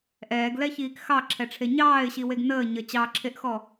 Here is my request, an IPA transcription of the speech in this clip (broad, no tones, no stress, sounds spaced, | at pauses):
ʔ ɛː ɡ l ɛ ç iː k x ɑ ǁʰ ɛ ʈ͡ʂʰ e ɲ ɑː ɪ̯ ɕ i w e ɡ n əː ɲ ə t͡ɕ ɑ ǁʰ e ʔ x ɔ